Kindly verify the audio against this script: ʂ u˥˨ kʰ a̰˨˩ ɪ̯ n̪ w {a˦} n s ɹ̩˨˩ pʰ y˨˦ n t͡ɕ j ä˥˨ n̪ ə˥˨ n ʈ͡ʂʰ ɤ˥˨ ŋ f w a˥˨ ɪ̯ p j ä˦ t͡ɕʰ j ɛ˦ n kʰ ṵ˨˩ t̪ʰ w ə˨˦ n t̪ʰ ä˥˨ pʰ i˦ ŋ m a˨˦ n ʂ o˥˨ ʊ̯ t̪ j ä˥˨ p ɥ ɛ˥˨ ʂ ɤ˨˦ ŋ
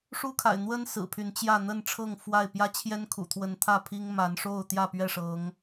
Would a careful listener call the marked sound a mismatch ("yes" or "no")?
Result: yes